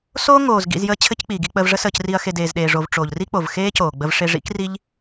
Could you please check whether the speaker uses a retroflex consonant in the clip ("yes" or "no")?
yes